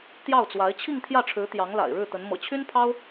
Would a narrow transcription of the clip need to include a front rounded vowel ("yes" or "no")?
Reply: yes